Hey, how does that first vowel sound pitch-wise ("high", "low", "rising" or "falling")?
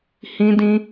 high